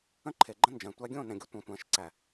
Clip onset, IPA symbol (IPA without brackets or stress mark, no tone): ə̃